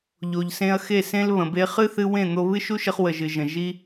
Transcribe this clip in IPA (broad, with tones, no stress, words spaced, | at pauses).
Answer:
ʎo˨ʎsẽ˧ɐ̯xe˦˨ sẽ˧l βə̃˨be˧χɨ˦ θɨ˧wẽ˦˨n̪o˧ βɨ˦ʃu˦ʃə˧χ wə˨ʒɨ˨ʒə̃˨ ʒi˦